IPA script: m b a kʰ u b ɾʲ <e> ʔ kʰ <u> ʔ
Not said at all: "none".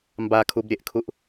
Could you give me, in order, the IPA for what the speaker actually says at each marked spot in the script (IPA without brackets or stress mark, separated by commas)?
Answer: e, u